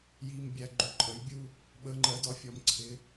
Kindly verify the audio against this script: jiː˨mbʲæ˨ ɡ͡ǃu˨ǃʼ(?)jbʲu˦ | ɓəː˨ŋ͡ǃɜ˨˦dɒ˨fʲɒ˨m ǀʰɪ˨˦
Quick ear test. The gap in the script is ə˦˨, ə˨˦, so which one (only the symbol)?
ə˨˦